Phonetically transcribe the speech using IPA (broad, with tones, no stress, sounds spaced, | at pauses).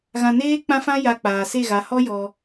ɣ ã˧ n eː˦ k͡p ã˦ f ã˦ j a˧ k͡p aː˨ s e˦˨ ɣ a˨˦ h ɔ˦ j ɔ˧